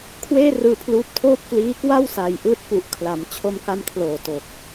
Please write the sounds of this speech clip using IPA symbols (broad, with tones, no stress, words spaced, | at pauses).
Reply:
kʰweː˥˩rɯː˧pʰluː˦˥p̚tʰoː˥˩p̚ kliː˦˥kwa˥˩w sa˧jʔɯː˥˩t̚ pu˨˩ʔkʰla˩˦m t͡ɕʰo˧mka˧mkʰloː˨˩to˨˩k̚